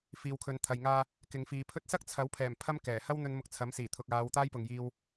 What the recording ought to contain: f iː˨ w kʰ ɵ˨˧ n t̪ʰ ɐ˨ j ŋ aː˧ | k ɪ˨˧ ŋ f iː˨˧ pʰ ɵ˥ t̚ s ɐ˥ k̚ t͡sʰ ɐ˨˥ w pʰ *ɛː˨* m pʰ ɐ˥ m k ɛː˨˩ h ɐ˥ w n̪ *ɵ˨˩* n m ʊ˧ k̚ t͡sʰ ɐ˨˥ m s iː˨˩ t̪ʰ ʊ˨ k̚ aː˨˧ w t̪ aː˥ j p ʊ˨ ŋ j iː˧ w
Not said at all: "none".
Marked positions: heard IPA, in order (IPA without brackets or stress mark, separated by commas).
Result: ɛː˨˩, ɵ˧